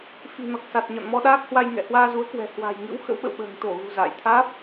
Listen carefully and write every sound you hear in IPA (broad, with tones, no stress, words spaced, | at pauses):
fi̤˨˩nɔ˨˩k̚sa˨˩t̚ɲɔ̰˧˨n mɔ˧ɗaː˦˥k̚hwa˧j ŋɛ̰˧˨hwaː˧zu˨˦ə̯kwɛ̤˨˩ hwa̤˨˩jŋɨ̰˧˥w xə̰˧˥wɓə̰˧˨wɓə̤ː˨˩ŋ t̪o˧˩ɣṳ˨˩ za̰ː˧˨j t̪ʰaː˦˥p̚